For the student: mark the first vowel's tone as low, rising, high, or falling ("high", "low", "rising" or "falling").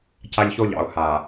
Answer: high